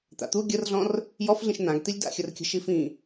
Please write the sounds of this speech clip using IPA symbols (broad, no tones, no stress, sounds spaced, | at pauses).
t̪ a̰ t̪ u ɡʲ ə r ɮ ɔ̃ r | j ɔ f ɮ ĩ ʃ n̪ ã ɡ t̪ i lʲ d a̰ xʲ ə r kʲ ə̤ ʃ i f ĩ